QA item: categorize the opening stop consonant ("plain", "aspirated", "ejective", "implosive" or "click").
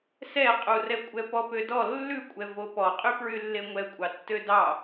ejective